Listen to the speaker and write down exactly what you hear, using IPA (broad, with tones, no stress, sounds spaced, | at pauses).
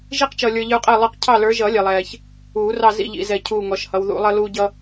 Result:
ʒ i˦ q t͡ʃ ʌː˨ lʲ ə˞˨ ʎ ə˞˦ qʼ ɛ˦˨ lˠ ʌ˦ q cʰ ɑ˦˨ l ə˞˨˦ ʒ ʌ˨˩˦ lʲ ɛ˨ lˠ ɛː˨ ç | uː˨˩˦ r ɑ˦˨ z ḭ˦˨ ʎ ḭ˨ z ɛ˨ cʰ uː˦˨ ŋ ɔ˨˦ ʃ h ʌ˨˦ w ð ṵ˨˩˦ lˠ ʌ˦ l uː˦ ɟ ʌ˦